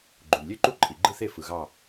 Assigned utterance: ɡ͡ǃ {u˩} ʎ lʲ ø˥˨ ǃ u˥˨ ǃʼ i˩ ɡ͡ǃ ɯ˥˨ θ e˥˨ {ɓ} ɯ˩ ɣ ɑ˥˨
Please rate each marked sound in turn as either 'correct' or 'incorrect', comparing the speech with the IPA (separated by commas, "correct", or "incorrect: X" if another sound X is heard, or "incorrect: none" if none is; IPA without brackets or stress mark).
correct, incorrect: f